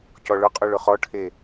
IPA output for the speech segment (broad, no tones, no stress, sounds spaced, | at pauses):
c ɔ ɭ ʊ qʼ u ɭ ʊ χ ɔ ʈʰ e